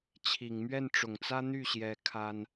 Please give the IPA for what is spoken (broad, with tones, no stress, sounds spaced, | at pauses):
t͡ɕʰ i˨˩ ŋ m ɥ ɛ˥˩ n ʈ͡ʂ ʊ˨˩ ŋ t͡s ä˥ n̪ y˥˩ ɕ j ɛ˧˥ kʰ a˥ n